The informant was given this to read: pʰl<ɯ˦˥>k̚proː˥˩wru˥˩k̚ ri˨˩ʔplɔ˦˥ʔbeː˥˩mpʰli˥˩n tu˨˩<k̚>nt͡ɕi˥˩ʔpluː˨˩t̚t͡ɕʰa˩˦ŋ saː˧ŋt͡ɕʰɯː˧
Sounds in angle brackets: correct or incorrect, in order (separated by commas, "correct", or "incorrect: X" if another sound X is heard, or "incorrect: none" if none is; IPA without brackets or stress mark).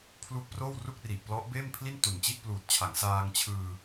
incorrect: u˦˥, incorrect: none